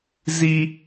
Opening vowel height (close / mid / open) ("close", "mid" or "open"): close